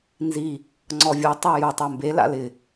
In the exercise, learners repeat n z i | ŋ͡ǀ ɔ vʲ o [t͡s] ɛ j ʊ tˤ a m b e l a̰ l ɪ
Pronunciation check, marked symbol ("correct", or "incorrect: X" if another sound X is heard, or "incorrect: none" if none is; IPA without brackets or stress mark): incorrect: tˤ